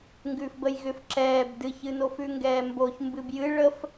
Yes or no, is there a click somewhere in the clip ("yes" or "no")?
yes